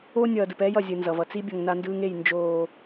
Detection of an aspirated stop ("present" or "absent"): absent